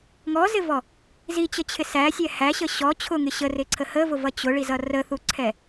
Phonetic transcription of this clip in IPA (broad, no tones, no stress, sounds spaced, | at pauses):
ŋ ɔ z ɪ v ɔ | z i t͡ɕ ə t͡ɕʰ ɪ s æ sʲ ɛ h æ ɕ ə ɕ ɔ t͡ɕʰ ʊ ŋ ɪ ɕ ə r ɪ ǀʰ ə h ə v ʊ v ʌ t͡ɕ ʊ ɭ i z ʌ r ə θ u ǀʰ ɛ